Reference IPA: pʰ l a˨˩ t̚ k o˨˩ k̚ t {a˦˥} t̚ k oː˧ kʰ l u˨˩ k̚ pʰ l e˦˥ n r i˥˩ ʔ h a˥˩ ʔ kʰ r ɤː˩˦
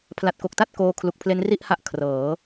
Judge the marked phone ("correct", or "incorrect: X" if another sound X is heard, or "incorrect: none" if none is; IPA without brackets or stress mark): incorrect: a˥˩